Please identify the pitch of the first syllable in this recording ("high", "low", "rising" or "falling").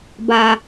low